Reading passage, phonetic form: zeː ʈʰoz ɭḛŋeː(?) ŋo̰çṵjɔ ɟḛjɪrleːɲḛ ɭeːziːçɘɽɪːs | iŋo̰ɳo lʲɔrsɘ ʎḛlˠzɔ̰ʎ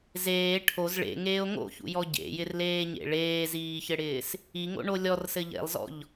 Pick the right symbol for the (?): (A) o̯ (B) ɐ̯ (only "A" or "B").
A